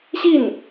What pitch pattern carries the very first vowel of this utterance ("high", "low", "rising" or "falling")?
falling